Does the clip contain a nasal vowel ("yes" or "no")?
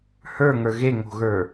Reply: no